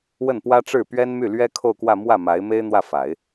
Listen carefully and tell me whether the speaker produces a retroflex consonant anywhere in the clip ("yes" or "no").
yes